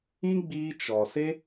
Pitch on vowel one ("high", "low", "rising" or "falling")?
high